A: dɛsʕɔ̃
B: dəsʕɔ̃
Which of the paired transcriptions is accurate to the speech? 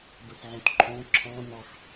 B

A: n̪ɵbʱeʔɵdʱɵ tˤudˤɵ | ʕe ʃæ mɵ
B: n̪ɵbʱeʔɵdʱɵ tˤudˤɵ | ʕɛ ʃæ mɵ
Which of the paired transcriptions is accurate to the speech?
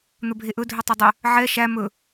B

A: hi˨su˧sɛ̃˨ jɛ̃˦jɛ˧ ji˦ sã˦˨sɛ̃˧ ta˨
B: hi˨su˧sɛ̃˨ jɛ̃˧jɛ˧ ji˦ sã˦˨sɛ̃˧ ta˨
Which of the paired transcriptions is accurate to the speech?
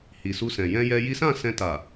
B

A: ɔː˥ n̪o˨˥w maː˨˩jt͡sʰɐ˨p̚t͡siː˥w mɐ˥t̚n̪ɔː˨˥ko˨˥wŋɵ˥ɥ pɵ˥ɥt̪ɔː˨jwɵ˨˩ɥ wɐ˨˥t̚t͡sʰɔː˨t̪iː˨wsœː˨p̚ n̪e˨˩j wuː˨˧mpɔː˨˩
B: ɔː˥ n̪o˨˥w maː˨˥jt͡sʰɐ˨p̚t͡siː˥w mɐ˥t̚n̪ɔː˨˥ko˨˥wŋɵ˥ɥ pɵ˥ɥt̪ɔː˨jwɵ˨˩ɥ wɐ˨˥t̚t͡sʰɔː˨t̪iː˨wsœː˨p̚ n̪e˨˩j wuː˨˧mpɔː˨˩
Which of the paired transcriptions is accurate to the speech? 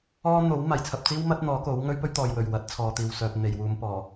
A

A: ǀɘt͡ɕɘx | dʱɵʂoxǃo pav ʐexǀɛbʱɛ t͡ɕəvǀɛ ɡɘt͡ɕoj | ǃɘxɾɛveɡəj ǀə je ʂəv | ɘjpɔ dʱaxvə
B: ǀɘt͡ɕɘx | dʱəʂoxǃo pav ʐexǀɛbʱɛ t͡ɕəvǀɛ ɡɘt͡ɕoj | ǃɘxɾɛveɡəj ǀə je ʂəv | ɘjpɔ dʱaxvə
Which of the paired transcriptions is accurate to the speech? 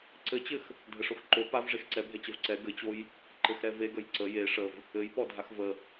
B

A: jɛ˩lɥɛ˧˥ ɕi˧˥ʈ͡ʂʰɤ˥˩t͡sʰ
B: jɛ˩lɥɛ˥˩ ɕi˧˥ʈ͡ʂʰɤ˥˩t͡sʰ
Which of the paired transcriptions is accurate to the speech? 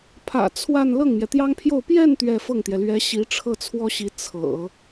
A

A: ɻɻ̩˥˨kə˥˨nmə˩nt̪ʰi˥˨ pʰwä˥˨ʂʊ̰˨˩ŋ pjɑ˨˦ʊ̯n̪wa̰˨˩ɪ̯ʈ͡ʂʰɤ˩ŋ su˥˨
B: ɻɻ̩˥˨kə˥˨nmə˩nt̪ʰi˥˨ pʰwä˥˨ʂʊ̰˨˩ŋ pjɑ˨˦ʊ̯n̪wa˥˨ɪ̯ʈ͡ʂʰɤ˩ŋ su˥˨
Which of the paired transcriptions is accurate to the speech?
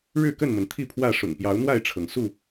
B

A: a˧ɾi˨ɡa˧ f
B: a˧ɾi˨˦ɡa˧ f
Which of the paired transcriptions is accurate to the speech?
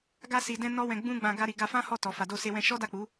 A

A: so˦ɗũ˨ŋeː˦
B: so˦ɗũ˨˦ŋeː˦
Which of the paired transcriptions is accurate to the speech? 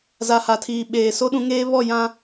B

